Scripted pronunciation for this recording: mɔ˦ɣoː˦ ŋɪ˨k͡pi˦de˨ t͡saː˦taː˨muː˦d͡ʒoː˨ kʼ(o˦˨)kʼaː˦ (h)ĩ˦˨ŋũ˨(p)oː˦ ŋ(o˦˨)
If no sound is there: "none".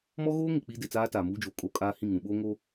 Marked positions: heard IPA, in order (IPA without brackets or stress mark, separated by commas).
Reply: o˦, h, ɓ, o˦